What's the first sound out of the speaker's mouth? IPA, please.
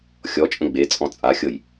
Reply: xʲ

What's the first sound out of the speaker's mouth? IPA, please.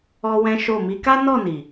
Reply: ɔ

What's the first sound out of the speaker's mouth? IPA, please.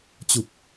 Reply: t͡ɕ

